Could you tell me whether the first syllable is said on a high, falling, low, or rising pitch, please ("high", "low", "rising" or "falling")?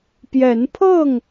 rising